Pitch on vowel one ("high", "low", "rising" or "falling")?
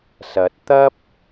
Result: rising